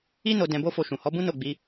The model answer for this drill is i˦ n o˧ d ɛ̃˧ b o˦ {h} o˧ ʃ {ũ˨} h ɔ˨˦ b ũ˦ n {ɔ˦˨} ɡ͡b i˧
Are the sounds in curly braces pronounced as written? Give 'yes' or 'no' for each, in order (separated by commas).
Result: no, yes, no